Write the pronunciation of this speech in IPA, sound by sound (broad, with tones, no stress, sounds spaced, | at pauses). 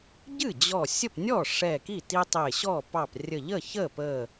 ɟ ɨ˥˩ d͡ʑ ɔ˧˩ sʲ ə˥˩ p nʲ ɔ˥˩ ʂ ɛ˧˩ k i˥˩ t i˦ tˤ e˧˩ ɕ ɔ˥˩ p ɑ˧˩ p rʲ ə˧˩ ʎ ə˥˩ ç ə˥˩ p ə˧˩